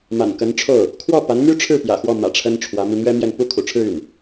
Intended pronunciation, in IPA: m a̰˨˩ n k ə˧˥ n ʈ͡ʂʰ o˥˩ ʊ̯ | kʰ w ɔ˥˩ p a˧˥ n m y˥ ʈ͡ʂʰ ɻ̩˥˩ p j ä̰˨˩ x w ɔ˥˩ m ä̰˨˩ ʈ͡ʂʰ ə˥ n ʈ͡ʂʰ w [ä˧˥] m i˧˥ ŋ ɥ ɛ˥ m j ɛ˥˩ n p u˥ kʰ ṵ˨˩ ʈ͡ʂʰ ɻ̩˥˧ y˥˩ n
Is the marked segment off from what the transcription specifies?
no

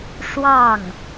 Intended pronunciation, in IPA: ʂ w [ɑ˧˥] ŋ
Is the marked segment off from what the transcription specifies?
yes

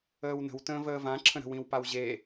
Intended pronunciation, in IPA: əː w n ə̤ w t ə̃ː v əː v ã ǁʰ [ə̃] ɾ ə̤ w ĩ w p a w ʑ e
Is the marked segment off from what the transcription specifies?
no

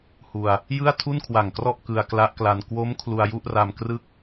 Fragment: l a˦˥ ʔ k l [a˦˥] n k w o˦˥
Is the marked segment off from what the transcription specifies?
yes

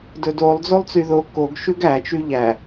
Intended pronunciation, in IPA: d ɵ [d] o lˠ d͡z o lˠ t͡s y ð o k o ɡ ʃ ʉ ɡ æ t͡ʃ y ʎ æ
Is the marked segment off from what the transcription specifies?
no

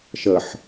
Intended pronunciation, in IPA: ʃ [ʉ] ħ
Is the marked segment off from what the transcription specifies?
yes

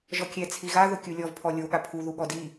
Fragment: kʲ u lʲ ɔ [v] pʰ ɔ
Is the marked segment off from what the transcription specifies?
no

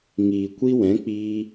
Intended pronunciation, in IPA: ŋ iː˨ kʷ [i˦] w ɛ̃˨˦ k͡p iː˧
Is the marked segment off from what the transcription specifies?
no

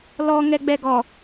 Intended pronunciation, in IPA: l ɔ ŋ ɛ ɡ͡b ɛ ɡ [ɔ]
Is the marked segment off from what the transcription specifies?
no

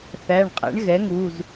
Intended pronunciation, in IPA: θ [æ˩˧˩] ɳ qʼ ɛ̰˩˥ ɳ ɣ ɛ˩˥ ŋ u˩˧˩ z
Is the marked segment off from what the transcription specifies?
no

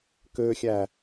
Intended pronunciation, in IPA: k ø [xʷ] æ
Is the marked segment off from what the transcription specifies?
yes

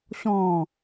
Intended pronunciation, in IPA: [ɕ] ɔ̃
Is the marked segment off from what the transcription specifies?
no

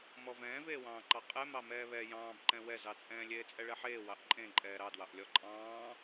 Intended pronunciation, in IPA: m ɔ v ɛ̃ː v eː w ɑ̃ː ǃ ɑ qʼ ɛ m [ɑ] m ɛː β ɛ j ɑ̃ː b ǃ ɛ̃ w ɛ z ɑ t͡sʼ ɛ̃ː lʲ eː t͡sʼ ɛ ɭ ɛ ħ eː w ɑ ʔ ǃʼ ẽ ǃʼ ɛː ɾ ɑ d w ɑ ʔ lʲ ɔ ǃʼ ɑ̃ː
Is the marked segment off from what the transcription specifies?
no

